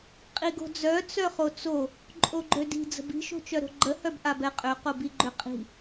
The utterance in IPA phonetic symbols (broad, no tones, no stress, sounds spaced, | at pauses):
qʼ i ɡ o̤ d͡z œ t͡s œ χ o t͡s o | ǃʼ o ɡ͡ǃ ø d i̤ d͡z ə̤ b i̤ ʃ o̤ t͡ʃ œ ɾ o̤ ɡ͡ǃ ə h œ b ʔ a b ɛ qʼ ø q o b i ɡ͡ǃ ø qʼ i̤